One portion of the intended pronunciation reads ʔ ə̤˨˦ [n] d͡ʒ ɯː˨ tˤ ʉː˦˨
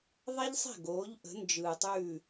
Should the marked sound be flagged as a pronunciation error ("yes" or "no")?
no